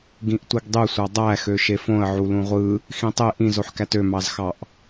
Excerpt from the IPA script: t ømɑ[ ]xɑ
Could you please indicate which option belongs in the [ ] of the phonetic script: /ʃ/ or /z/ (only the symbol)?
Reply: z